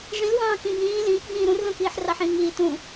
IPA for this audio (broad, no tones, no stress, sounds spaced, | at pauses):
ʐ ĩ l w ɑ̃ː k ĩ b ĩː l ĩː k b ĩː ɾ ũ r l õ k iː ħ r ɑ ħ ĩː ŋ iː t ũ